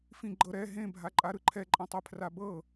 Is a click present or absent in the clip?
present